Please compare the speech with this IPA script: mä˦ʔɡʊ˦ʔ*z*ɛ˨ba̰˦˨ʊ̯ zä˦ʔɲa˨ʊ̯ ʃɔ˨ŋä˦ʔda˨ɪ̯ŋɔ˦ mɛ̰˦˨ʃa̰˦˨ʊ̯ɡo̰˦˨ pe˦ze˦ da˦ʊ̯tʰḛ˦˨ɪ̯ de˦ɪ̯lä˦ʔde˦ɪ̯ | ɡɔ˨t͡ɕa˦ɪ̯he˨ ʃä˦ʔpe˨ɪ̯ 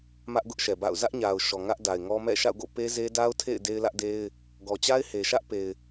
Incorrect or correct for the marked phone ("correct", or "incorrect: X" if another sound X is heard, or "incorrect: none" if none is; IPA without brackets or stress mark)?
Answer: incorrect: ʃ